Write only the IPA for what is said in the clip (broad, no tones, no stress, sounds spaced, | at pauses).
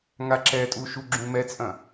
ŋ a ǁ ɛ tʼ u ʃ u ɡ͡ǁ ũ m ɛ t͡sʼ ɐ̃